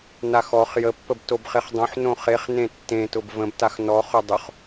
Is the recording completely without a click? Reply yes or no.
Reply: yes